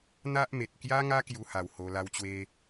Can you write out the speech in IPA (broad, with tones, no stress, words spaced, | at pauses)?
n̪a˦ʔme˨t̚ kja˦ŋa˦ kju˧ha˨˩w ho˧la˦wt͡ɕwe˦